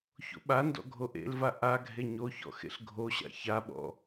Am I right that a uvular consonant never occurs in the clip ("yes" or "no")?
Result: yes